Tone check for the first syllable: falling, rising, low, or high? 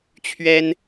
high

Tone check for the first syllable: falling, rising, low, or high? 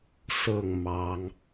falling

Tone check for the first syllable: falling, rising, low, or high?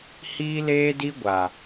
high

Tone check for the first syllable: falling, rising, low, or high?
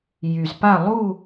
low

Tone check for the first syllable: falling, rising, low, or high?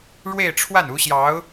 falling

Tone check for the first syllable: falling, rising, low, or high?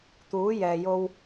rising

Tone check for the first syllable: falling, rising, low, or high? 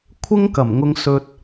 high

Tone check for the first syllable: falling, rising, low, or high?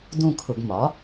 falling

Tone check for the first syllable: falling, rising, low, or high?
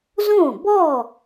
falling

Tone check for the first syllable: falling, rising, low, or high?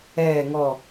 low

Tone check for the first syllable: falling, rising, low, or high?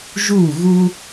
falling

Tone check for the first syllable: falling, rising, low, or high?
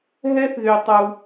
high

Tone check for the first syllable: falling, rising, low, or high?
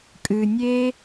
low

